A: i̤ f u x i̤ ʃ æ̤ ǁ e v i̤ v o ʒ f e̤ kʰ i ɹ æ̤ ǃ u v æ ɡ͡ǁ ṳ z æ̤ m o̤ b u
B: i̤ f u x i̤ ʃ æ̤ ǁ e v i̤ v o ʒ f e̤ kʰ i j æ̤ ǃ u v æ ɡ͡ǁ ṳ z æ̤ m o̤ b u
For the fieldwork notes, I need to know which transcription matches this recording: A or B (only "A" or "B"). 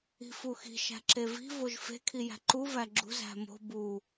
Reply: B